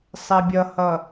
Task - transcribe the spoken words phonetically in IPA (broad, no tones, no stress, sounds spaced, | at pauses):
sˤ ɛ bʲ ʌ h ʌ